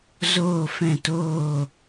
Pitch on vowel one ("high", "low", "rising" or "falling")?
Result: falling